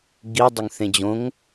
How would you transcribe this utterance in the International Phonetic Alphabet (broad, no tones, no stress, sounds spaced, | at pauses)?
ɡ i dˤ ɵ ŋ θ ẽ d͡ʑ õ ŋ